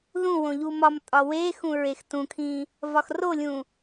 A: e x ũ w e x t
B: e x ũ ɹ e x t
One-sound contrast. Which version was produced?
B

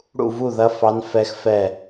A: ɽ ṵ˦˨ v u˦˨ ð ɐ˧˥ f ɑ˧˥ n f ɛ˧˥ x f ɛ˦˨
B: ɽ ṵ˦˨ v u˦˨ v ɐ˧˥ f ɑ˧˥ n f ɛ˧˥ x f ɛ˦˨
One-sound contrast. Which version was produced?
A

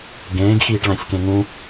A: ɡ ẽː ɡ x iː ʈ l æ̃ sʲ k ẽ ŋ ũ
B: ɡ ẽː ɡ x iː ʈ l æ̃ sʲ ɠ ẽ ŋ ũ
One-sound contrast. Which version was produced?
A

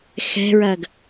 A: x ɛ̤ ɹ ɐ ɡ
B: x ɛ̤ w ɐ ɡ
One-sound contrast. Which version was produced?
A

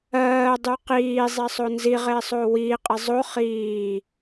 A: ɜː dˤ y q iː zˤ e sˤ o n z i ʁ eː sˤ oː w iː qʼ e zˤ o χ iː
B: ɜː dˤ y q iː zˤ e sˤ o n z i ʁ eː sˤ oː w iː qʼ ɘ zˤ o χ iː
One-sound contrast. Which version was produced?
A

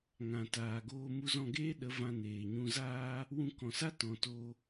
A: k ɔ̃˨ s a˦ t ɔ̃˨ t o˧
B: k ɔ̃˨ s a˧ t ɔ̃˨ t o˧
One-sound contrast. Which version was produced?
A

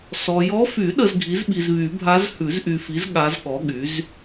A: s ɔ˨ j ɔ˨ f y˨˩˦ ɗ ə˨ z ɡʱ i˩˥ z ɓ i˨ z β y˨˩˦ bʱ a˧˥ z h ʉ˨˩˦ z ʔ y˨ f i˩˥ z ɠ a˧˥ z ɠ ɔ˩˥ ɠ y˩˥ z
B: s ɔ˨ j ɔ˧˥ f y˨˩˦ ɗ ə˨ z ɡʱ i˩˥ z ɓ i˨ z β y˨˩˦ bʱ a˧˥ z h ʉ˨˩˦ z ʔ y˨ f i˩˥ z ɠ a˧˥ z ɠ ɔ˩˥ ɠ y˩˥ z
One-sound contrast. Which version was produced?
B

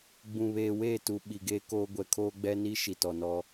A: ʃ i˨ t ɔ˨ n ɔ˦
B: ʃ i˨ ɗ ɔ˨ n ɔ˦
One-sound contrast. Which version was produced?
A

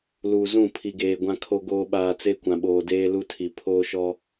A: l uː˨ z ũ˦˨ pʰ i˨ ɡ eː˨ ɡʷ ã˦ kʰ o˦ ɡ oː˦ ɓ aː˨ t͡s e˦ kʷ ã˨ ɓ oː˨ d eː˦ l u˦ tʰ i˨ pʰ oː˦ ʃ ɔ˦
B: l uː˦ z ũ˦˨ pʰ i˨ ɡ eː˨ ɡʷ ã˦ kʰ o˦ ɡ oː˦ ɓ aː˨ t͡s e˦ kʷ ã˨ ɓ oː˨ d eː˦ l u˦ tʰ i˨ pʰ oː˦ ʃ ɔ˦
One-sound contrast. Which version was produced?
A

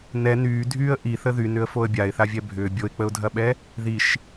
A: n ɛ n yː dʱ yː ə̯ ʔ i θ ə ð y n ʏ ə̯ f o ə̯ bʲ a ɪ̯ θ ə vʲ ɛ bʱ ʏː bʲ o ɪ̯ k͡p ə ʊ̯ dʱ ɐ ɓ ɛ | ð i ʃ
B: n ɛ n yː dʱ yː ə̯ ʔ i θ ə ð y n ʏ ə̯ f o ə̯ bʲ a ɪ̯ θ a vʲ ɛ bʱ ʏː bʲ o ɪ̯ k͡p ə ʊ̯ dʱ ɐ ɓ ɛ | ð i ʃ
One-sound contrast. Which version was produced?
B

